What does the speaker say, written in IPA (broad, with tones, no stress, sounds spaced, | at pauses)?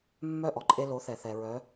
mː œ˥˩ ʔ ɔ˩ ǃʼ e˧ l o˩˥ θ ɛ˩ θ ɛ˩ ɹ œ˩˥